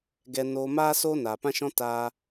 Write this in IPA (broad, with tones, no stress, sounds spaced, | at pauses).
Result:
ɡ ɛ˧ n oː˧ m aː˦ s oː˦ n aː˨ p ã˦ ʃ ɔ̃˦ t aː˧